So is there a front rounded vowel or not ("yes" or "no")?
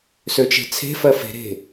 yes